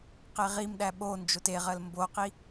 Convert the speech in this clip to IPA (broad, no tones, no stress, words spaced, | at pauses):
qeʁimɗæ ɓo nd͡ʒoteʁɜl mboqi